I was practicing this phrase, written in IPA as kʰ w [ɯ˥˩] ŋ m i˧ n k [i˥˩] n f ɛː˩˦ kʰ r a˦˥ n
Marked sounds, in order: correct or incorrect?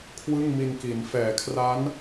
correct, incorrect: i˩˦

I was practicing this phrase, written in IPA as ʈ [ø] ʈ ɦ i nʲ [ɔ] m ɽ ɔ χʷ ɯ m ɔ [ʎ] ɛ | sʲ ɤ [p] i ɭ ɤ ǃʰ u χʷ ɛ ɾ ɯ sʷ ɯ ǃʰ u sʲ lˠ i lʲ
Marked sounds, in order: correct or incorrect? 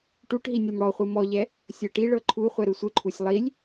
incorrect: u, incorrect: ɤ, correct, incorrect: ʈ

